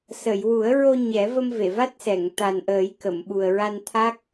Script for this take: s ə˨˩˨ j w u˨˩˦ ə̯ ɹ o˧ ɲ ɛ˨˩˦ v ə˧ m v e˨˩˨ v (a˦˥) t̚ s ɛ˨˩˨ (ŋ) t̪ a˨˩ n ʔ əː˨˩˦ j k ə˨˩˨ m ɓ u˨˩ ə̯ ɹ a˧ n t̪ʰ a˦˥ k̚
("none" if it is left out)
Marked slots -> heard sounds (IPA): a˦˥, ŋ

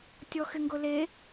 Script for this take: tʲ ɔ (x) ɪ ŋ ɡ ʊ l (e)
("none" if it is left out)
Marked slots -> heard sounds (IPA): x, e

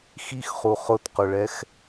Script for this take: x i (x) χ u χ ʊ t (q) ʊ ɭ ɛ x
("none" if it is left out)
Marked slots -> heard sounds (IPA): x, q

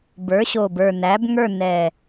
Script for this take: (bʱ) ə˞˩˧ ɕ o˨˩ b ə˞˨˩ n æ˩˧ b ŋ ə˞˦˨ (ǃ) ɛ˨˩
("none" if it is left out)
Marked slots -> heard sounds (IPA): b, n

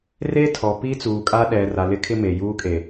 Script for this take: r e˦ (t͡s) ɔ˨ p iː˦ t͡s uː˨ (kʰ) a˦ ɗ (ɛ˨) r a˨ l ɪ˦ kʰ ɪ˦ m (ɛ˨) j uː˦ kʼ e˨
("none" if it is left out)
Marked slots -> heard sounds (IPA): tʰ, kʼ, ɛ˨, e˨

